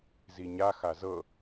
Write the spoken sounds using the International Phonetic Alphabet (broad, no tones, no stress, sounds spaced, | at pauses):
z i ɲ a x a z ɤ